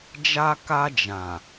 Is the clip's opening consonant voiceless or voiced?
voiced